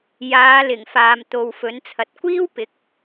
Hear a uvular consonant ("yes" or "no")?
no